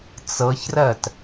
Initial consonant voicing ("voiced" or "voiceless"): voiceless